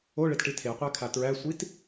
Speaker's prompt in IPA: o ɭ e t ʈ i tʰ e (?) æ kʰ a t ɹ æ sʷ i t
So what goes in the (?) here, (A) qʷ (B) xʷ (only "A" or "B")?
A